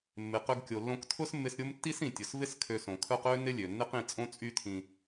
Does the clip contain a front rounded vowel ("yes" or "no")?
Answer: yes